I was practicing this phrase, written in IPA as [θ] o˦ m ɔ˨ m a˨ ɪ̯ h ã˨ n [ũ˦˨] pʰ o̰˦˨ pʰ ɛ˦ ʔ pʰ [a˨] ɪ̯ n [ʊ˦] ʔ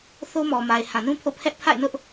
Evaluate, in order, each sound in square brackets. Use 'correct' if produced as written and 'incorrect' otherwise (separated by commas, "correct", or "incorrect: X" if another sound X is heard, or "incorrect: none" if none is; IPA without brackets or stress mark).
correct, incorrect: ũ˦, incorrect: a̰˦˨, correct